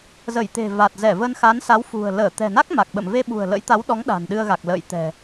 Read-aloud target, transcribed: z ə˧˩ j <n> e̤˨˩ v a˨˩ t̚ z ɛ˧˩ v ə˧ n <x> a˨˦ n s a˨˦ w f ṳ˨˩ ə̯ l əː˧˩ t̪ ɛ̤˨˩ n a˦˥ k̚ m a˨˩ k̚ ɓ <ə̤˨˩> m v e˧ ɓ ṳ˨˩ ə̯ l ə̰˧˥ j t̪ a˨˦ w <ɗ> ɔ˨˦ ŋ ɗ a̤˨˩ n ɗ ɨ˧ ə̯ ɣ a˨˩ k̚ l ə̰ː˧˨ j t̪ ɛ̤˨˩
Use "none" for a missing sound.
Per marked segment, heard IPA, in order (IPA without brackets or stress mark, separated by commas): t̪, x, ə̰˧˨, ɗ